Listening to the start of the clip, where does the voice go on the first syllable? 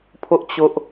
high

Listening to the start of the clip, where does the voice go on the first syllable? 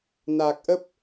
low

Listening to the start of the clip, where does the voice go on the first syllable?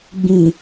low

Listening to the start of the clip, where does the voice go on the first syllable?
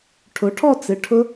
rising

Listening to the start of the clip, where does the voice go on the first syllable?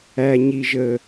low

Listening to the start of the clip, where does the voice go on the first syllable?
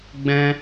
high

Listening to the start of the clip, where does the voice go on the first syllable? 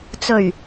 low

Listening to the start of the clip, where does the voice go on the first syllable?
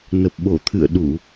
low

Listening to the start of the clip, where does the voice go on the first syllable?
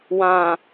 low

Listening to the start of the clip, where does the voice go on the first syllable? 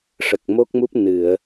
low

